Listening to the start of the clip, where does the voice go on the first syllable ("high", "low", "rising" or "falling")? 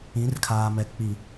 rising